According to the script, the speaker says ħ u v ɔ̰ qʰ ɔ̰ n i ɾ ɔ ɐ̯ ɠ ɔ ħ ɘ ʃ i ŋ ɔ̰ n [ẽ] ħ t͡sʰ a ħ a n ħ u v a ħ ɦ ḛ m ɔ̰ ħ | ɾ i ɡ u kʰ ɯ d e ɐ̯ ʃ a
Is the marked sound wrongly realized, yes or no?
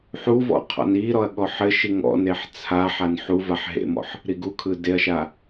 yes